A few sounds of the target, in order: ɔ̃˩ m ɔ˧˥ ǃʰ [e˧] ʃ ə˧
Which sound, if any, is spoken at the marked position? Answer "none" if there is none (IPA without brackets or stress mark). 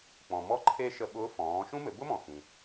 e˧